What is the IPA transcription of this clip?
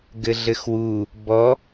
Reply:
ɡɘɮɘxwu | bɔ

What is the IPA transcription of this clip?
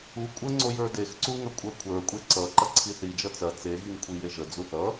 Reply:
u kʷʼəŋ͡ǀo jə˞dexǀu ŋɐkʷʼə˞kʷʰə˞kʷʼe ǀʌ ǃɐǀʰiθid͡ʒʌ t͡sɐ t͡seɣiŋ kʷʰijeʒəd͡zu θʌ

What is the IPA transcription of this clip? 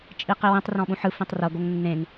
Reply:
t͡ʃʼiqiwĩtˤ rɔ̃ɓũħɯ fĩtˤrɤ ɡoŋnːẽŋ

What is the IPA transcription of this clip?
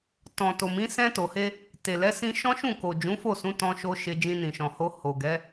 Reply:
tɔ̃˨to˨mĩ˨˦ sɛ̃˧ to˨he˧ | te˨lɛ˨˦ sĩ˧ʃɔ̃˦ʃũ˦˨ko˨ d͡ʒũ˨˦fo˦˨sũ˨˦ tɔ̃˧ʃo˧ ʃe˧ d͡ʒĩ˧nĩ˨ʃɔ̃˨ho˧ ho˨ ɡɛ˨˦

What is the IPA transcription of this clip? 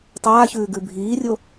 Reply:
tˤaːçʉː ɡʉbʱiːrʲo

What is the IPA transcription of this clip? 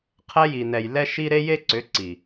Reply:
qʰɛ˧ji˨nɛ˨j lɛ˦ʃi˦ ɾe˦je˦ǀʏ˨˦ǀi˨

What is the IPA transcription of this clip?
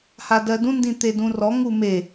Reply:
hadɜdũ ndĩt̪edũrɔ ŋume

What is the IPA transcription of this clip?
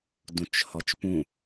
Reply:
dũt͡ʃhɔt͡ʃpũ

